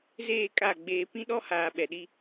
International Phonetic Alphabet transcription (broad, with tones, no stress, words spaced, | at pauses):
zeː˦˨kʼa˦˨ ɡ͡beː˨ pĩ˦ɗɔ˦haː˨ ɓɛ˨ɗi˦